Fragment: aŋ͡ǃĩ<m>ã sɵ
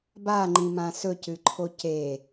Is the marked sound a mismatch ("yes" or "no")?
no